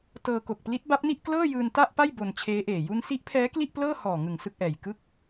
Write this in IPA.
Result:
tɤː˧ ko˨˩k̚pli˦˥t̚ba˦˥p̚ni˥˩ʔ klɤː˥˩jɯː˧n ta˥˩ʔpa˥˩j bo˧nt͡ɕʰeː˦˥ʔeː˨˩ ju˧nsi˦˥ʔpʰɛː˦˥ kli˥˩ʔplɤː˥˩hɔː˨˩ŋɯ˨˩ŋ sɯ˥˩k̚ʔɛː˨˩j kɯ˦˥k̚

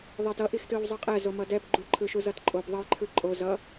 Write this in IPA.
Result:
ðˤɛtʌʔix tɯwzˤɯqʼɛ zomʌdɛb ɡ͡ǃuǃʰɯʃu zʌtǃʼob ðˤʌjǃʰɯǃʼo zʌ

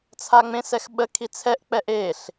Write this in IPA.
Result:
t͡sʰaŋ͡mẽsɛx ɓə kʰit͡sʰɛʔ k͡pɛʔeɬ

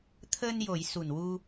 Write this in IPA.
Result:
t̪ʰəː˧njo˨˩˨j su˨˩nwu˧

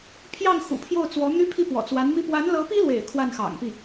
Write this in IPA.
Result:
pʰjɑ˥˩ŋxṵ˨˩pʰjo˥˩ʊ̯ t͡swɔ˧˥n̪y˥pʰi˥˩ pwɔ̰˨˩t͡swa˧˥nmi˥ pwa˧˥nlɤ˧˥pi˥lwḛ˨˩ɪ̯ kʰwa˥˩nxɑ̰˨˩ŋpi˥˩

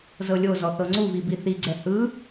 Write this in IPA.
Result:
zɤlʲozɔ θɤŋ͡ǀuvi biθiɡ͡ǀɛ hɯ

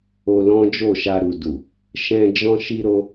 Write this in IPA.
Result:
o˧lɔ̃˦d͡ʒo˦˨ʃa˧ ɾu˨du˨ | ʃɛ̃˧ d͡ʒɔ̃˧ʃi˧ɾo˧

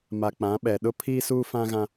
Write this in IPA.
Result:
ma˨k͡pã˨˦ ɓɛ˨ɗʊ˦pʰiː˦suː˦ fã˦ɣã˦

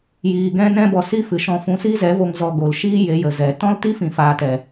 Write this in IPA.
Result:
jiː˧ɡɛ̃˦nɛ̃˦bɔ˧ si˦fɨ˨ʃɔ̃˧fũ˧ si˦zɛ˨˦vo˧ŋ zɔ˧ɡo˨l ʃiː˦ je˨˦jə˨ zɛ˨ tɔ̃˦lti˦fĩ˨faː˨t ɛ˨

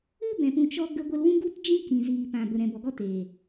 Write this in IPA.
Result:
ɨ˦bɛ̃˨pũ˨ t͡ʃɔ˧ ɡə˧ɡʷə˧lwũ˦ ɡu˦td͡ʒĩ˦ kĩ˨ziː˨pã˨ bə˨ɾɛ̃˨bɔ˨ɡɔ˧ teː˨

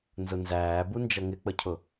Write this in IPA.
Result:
nzʊnzæːbu nd͡ʒʌŋɪk͡pəcʰʊ

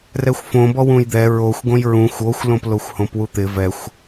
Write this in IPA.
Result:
rɛxʷfõbɔ wũjd̪ɛ ɹoxʷ ɡõjɹũxʷ oxʷlõploxʷ hõpwut̪ɪ vɛxʷ

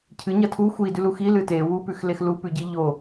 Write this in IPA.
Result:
cʰɨɲɐ tʰu xʷidʉlu xilɨ te wupʉxlex lupʉɟi ʎo

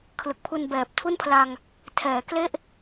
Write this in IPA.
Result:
kʰlɯ˨˩k̚pʰu˧nbɛː˨˩p̚ tʰu˥˩npʰla˧ŋ | tʰɛː˩˦ kle˥˩ʔ

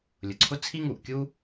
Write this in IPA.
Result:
lʲʊ˩ǀʰʊ˥ t͡sʰi˥ŋu˩ʔkʲu˥

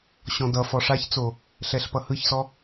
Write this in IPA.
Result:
ɕɔ̃dʌfɔ ʂaçt͡so | ɬɛɬpʌhɯçsɔ

